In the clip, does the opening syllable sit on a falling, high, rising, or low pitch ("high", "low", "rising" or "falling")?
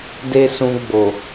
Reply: high